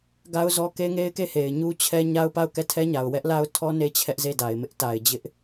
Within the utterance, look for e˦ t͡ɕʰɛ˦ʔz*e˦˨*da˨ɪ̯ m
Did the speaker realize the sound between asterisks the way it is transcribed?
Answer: yes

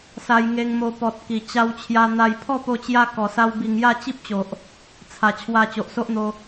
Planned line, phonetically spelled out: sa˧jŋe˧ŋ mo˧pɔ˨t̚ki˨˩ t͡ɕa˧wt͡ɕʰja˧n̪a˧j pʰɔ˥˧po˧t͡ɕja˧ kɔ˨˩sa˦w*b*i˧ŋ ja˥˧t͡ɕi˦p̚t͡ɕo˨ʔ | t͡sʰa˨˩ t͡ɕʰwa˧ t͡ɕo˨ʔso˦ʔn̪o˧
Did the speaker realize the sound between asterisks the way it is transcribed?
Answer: yes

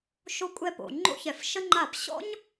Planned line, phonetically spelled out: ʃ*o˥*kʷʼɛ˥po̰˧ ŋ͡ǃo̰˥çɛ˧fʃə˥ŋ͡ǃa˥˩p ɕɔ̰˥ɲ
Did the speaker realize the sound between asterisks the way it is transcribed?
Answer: yes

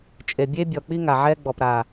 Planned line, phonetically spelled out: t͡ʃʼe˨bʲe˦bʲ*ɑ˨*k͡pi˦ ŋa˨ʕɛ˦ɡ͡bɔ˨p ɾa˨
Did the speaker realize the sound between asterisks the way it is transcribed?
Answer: no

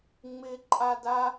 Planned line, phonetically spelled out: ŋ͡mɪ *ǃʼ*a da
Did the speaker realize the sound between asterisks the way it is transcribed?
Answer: yes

